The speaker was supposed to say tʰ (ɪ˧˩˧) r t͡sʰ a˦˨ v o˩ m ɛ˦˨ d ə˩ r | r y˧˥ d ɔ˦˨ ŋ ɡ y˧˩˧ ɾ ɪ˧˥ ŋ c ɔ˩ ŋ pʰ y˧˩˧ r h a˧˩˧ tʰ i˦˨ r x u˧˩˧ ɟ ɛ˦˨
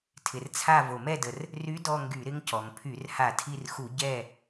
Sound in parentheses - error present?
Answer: yes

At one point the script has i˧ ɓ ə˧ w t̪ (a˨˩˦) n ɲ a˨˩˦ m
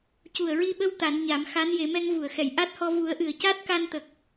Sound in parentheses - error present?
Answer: no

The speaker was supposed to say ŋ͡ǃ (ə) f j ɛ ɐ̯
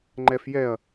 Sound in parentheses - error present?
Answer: yes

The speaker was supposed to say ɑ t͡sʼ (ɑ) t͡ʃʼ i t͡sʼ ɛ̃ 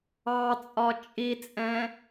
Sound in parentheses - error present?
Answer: yes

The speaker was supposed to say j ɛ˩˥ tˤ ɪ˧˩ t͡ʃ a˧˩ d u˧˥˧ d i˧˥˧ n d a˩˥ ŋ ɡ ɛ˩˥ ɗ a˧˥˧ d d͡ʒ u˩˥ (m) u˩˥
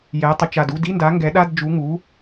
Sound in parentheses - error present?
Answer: yes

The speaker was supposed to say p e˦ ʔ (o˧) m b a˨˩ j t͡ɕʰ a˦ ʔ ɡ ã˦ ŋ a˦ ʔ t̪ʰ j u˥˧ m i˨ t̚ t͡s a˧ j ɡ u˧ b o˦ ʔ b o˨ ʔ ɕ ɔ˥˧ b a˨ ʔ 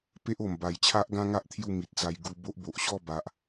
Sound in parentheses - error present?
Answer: yes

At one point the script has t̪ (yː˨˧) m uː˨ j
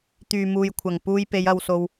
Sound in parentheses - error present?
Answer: yes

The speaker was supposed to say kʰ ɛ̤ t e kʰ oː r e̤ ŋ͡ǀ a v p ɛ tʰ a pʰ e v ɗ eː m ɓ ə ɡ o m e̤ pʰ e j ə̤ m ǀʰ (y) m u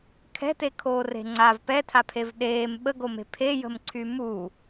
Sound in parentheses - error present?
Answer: no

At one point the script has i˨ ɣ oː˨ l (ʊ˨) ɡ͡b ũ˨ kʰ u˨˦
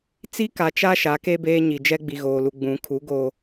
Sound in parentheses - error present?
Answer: yes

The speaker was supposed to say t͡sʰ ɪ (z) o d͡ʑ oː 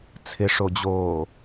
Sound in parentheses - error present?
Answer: yes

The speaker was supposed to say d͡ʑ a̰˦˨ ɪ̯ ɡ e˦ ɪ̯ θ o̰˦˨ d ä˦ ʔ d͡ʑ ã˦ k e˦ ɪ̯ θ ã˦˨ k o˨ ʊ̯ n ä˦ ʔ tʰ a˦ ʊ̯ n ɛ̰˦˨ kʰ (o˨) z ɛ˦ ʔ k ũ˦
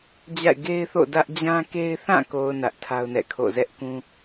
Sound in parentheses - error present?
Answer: yes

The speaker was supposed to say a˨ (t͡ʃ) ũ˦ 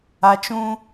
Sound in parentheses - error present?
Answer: no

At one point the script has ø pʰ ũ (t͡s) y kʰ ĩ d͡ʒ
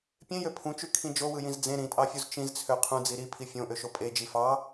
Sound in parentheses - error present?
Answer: yes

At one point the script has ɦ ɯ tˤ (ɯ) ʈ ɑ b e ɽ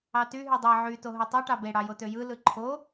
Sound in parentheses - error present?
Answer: no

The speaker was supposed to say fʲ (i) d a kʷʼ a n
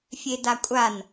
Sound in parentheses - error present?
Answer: yes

